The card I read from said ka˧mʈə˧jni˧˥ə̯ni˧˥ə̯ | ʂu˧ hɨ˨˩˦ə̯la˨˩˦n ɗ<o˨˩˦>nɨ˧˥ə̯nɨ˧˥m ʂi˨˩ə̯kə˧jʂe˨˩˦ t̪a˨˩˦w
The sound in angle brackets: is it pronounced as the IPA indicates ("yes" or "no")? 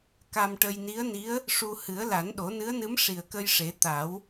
yes